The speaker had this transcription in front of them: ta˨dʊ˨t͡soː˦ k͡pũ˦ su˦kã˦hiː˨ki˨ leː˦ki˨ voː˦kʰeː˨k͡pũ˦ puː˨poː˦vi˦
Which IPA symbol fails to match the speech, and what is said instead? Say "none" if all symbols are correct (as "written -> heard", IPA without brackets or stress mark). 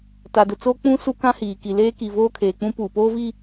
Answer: none